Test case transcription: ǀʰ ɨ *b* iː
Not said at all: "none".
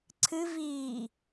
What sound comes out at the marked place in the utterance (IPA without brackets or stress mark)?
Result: v